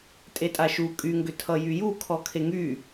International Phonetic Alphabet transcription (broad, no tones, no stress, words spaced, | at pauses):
tʼetʼaʃu kʼyŋɡʏ tʰʌjyju kʰɔkʰeŋy